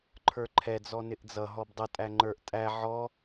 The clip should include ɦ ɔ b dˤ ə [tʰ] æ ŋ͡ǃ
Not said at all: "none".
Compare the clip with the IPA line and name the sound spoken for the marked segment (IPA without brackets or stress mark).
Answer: tʼ